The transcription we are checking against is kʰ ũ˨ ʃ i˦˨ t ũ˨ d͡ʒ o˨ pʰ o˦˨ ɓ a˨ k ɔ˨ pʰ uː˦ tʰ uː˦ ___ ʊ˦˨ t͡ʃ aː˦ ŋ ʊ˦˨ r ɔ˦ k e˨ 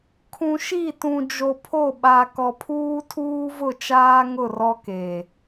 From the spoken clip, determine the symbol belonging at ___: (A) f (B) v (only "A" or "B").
B